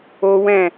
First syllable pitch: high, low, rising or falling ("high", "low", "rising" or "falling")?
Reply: high